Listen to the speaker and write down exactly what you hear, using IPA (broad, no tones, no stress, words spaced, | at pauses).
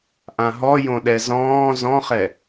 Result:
ʔãɦɔjõɗɛ zɔ̃ː zɔ̃χɛ